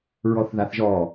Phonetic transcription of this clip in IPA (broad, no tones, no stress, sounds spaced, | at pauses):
ɹ ɔ θ ð a θ ʒ ɔ